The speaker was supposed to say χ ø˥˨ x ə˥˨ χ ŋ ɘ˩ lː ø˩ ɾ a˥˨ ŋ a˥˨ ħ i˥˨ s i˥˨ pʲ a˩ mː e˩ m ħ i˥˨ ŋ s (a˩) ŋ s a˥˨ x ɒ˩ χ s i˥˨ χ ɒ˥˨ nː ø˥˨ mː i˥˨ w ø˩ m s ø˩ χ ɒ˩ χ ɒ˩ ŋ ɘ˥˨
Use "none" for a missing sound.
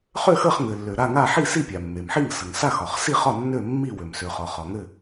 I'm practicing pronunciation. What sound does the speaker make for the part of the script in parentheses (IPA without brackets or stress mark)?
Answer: ə˩